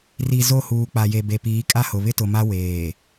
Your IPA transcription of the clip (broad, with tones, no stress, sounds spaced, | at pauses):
r i˨ z o˦˨ h uː˨ k͡p a˨ j e˨ b e˨ p iː˨˦ kʼ a˦ h ʊ˨ β ɪ˦ t ʊ˨ m a˦ w eː˨